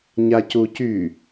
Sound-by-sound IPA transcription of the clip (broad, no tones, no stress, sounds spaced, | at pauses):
ɲ a c u c y